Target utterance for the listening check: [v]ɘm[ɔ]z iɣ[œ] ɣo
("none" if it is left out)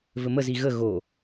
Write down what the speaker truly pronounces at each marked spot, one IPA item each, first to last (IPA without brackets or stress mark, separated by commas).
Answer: v, ə, ə